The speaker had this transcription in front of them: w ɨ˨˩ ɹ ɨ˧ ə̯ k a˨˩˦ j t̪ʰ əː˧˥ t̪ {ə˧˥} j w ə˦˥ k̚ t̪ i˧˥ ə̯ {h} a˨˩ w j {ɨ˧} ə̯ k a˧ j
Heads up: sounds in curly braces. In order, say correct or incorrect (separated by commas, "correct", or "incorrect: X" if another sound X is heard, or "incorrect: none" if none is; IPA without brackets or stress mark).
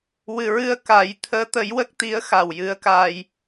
incorrect: ə˨˩˦, incorrect: x, incorrect: ɨ˧˥